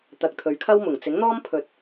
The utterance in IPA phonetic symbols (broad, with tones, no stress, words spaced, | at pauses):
t̪ɐ˨k̚t̪ʰɵ˨˧ɥkʰɐ˥wmʊ˨˩ŋ t͡sɪ˨˥ŋn̪ɔː˥mpʰɵ˨˥t̚